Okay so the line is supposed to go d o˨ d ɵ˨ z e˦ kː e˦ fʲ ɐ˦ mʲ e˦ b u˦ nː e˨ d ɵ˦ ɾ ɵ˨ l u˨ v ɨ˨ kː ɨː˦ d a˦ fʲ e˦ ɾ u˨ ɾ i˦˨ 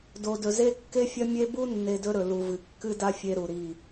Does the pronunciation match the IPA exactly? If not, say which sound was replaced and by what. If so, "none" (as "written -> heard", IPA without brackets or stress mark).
ɨː˦ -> ɨ˦